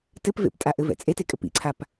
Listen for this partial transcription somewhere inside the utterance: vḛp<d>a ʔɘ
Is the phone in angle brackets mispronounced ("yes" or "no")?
yes